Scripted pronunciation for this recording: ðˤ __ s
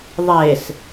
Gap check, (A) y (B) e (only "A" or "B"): B